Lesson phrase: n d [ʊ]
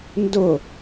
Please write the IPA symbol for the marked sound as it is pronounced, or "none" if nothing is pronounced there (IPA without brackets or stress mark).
ʊ